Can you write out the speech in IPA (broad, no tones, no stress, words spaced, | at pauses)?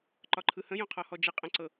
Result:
ǃɒǃʰɯhə̃ jõqʰɔhɔd͡ʒə qʼə̃ǀɤ